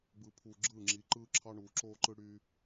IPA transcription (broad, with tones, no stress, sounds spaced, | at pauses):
b ɯ˨ pʰ uː˨ ɡ͡ǁ ɯː˦˨ ŋ͡ǁ iː˨ ǃ ɯː˦ ǁʰ ɑ˦ ɳ uː˨ ǁ oː˦ ǃ ɯ˦ ɽ y˦